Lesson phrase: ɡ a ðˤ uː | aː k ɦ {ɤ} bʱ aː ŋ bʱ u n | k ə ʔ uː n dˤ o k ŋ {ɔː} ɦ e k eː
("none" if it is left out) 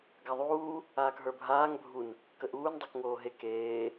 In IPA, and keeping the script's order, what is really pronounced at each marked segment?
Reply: ə˞, oː

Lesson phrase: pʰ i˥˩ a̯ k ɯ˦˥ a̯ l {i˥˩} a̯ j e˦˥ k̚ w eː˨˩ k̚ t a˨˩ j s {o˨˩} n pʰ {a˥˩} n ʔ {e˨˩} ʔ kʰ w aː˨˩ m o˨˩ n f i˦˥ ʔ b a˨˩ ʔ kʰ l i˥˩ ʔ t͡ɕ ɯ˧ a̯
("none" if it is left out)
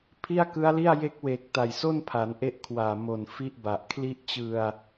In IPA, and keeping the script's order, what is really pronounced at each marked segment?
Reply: i˥˩, o˥˩, a˩˦, e˦˥

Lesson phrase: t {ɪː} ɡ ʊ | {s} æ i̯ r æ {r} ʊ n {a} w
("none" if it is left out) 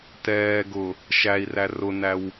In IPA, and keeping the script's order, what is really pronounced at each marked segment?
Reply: ɛː, ʃ, r, æ

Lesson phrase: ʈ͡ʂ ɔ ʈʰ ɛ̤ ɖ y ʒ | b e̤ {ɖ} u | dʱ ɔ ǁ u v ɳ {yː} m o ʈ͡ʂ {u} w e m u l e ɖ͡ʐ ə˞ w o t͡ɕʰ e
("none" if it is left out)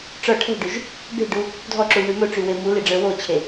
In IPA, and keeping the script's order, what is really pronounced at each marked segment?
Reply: ɖ, y, y

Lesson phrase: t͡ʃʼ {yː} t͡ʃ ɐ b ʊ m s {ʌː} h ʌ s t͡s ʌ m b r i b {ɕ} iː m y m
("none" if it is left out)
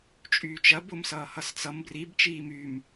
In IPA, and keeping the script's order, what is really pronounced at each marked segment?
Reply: yː, ʌː, t͡ʃ

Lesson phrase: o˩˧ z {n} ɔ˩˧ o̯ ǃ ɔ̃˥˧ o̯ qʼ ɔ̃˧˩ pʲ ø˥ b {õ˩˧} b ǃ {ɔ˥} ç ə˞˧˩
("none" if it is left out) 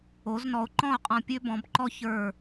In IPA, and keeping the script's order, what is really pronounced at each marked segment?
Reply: n, ɔ̃˩˧, ɔ˥

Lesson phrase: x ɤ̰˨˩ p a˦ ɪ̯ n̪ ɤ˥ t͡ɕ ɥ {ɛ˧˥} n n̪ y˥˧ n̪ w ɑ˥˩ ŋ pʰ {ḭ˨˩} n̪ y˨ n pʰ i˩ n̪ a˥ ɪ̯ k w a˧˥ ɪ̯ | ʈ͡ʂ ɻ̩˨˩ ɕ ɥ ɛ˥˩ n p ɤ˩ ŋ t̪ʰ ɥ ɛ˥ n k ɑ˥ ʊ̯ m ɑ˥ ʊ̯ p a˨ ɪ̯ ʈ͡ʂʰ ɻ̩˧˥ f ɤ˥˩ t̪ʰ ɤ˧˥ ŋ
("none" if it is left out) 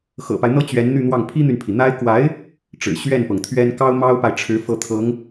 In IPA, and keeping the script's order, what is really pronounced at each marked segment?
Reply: ɛ˧˥, i˥

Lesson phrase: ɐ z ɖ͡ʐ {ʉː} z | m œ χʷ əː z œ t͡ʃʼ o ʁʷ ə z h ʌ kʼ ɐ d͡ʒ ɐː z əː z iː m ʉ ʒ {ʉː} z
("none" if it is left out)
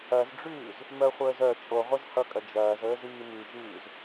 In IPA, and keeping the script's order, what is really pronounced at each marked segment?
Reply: ʉː, ʉː

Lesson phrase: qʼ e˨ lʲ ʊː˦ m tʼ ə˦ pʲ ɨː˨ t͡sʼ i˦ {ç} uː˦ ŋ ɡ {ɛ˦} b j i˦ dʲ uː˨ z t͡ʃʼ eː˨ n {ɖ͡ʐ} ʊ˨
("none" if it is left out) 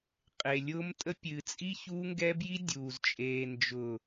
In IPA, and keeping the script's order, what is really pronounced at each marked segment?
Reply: ç, ɛ˦, d͡ʒ

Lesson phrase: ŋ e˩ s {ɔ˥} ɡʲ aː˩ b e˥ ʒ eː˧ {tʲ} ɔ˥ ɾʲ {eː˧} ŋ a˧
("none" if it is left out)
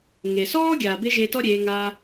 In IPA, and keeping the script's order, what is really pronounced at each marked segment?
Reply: ɔː˥, t, eː˩˧

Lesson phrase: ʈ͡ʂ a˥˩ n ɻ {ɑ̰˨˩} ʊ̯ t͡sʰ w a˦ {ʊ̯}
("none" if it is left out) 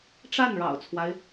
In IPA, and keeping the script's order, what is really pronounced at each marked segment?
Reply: ɑ̰˨˩, ɪ̯

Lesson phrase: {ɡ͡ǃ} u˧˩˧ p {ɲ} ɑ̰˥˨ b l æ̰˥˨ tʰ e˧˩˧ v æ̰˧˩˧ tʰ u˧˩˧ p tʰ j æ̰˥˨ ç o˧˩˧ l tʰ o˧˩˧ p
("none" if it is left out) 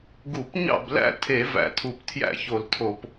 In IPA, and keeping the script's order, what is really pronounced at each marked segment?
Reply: ɡ, ɲ

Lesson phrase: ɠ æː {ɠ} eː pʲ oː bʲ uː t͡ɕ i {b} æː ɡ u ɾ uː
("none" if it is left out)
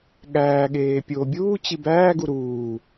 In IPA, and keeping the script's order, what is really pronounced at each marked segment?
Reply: ɠ, b

